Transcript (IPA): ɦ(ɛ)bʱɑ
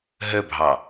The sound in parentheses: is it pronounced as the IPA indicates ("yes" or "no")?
no